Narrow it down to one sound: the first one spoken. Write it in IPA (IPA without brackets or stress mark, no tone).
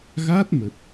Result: ɣ